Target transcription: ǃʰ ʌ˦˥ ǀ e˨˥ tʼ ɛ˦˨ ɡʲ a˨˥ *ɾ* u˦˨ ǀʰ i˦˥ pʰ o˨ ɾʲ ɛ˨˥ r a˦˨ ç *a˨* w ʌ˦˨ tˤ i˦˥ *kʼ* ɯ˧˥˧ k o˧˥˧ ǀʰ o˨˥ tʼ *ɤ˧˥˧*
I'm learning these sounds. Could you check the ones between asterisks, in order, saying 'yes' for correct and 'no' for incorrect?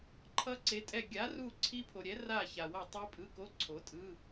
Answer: no, yes, no, no

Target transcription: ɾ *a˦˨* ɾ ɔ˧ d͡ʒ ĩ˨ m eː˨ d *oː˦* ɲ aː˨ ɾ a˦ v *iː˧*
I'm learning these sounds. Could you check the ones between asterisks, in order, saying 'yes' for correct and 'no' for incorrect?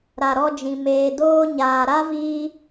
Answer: no, no, yes

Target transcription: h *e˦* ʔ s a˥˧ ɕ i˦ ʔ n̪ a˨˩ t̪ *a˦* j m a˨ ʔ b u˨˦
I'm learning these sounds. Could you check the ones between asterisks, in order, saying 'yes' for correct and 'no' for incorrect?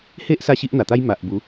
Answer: yes, yes

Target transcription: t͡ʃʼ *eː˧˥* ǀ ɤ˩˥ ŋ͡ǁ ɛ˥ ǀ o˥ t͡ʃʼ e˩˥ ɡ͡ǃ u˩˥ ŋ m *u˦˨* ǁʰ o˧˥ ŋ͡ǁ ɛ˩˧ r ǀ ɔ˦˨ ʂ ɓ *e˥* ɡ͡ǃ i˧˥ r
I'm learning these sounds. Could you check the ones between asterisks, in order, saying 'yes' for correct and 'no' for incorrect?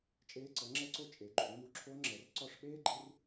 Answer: yes, no, no

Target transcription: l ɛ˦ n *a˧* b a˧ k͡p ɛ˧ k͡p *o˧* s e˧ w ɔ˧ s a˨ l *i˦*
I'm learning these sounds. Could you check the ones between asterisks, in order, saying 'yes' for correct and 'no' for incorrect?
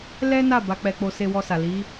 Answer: no, yes, no

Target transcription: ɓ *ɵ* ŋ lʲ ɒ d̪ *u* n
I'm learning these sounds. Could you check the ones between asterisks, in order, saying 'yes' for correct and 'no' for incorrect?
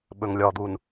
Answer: yes, yes

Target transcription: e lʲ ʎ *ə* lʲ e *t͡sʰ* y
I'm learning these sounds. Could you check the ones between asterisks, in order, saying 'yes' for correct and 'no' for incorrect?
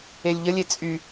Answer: yes, no

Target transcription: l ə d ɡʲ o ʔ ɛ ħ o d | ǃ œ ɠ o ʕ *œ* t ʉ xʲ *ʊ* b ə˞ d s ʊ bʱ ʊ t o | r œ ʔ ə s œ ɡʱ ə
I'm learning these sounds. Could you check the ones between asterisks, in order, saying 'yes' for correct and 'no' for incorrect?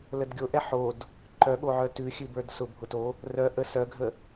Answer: yes, no

